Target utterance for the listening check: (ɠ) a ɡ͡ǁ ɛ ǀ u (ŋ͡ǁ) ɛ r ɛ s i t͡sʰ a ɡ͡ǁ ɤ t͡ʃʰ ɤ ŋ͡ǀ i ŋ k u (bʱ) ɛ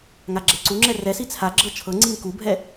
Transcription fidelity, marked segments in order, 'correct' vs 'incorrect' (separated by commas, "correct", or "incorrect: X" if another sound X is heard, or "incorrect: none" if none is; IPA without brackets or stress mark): incorrect: ŋ, correct, correct